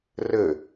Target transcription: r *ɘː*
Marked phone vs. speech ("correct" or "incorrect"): correct